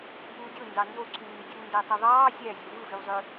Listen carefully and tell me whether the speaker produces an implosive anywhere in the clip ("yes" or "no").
no